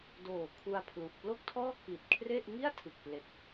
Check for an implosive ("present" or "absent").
absent